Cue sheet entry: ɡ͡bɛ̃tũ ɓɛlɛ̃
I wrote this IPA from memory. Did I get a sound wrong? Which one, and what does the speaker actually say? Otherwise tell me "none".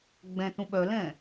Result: ɛ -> œ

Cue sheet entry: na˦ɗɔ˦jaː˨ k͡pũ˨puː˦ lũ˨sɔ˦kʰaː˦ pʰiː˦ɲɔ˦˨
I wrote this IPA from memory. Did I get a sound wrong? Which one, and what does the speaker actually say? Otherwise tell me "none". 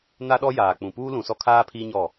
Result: none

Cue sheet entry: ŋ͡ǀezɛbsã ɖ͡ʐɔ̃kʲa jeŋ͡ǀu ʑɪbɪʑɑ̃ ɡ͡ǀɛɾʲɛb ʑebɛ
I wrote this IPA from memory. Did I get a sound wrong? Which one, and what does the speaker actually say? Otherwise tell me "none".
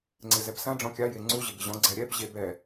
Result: ɑ̃ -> ɔ̃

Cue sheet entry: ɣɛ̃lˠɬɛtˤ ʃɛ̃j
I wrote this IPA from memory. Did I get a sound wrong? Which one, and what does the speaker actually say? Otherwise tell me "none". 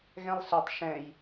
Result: none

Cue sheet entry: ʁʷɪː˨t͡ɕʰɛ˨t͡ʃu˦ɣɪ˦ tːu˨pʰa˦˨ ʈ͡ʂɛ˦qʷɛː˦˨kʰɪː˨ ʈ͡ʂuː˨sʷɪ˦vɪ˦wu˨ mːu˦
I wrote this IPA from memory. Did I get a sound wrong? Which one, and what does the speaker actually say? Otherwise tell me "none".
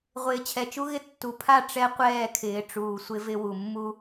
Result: none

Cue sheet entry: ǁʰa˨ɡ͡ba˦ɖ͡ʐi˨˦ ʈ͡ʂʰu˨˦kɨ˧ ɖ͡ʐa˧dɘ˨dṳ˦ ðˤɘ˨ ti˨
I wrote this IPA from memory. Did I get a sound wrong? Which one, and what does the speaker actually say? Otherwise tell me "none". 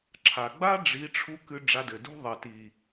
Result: u˨˦ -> u˧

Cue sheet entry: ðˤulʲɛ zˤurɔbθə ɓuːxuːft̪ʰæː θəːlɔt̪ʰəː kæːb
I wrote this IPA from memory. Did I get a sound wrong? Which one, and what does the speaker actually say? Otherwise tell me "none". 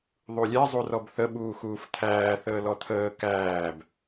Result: none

